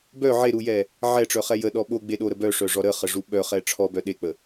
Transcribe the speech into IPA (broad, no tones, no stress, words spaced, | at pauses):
bœ ʕeɾujɛ | ʕɛʈ͡ʂœχɛ jəɗɔ ɓoɡ͡beɗoɾə bœʂœʐɔ ɾəχəʐu ɓœχɛ ʈ͡ʂʰɔbœ ɗek͡pə